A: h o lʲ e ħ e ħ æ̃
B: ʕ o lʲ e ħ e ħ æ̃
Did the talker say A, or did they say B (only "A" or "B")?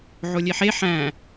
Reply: B